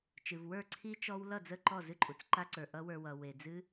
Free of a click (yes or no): no